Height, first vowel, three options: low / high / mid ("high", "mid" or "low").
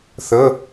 mid